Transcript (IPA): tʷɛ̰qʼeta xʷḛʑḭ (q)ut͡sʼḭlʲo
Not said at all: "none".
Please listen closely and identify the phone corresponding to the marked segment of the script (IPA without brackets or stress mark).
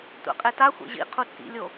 qʰ